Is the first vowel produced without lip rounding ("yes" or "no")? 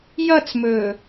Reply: yes